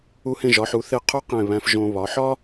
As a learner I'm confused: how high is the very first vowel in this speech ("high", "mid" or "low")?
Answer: high